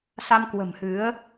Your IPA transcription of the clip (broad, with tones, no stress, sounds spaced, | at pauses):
s a˧ m k w ə̤˨˩ m h ɨ˨˦ ə̯